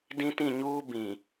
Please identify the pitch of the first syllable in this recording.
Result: high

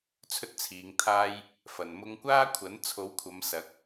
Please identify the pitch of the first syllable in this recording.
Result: high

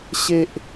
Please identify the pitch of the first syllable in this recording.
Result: high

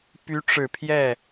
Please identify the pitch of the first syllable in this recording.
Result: rising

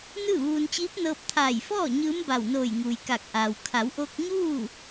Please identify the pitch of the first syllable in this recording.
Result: falling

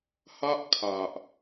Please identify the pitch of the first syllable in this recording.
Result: high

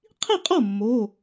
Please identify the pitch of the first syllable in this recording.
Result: falling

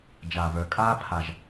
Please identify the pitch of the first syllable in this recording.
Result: low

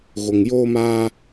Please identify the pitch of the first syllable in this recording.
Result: low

